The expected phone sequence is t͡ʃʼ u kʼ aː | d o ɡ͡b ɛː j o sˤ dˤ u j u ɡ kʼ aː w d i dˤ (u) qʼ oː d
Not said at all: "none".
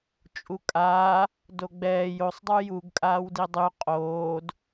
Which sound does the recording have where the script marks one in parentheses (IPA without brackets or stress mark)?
y